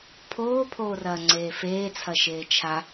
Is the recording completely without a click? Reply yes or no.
no